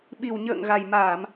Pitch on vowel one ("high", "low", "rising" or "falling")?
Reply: low